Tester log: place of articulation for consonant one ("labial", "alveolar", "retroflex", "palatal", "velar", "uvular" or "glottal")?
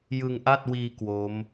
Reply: palatal